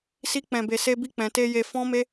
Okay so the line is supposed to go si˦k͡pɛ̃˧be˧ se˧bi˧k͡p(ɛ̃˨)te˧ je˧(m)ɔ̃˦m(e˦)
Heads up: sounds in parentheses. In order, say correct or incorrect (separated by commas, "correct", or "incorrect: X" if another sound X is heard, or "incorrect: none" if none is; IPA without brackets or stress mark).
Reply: correct, incorrect: f, correct